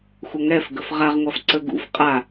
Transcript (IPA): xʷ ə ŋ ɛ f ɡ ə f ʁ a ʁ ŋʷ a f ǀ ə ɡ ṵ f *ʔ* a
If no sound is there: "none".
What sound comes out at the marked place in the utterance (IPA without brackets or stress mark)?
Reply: qʼ